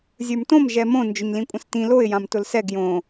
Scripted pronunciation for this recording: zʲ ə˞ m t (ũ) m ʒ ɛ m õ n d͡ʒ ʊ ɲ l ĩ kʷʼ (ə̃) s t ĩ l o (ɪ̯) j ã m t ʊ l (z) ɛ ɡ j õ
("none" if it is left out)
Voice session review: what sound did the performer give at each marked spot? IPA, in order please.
õ, ə̃, ɪ̯, s

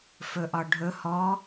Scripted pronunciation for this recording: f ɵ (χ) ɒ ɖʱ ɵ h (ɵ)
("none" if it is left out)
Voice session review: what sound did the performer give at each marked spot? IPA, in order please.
ʔ, ɔ

